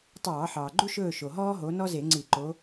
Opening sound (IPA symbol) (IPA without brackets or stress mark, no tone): tˤ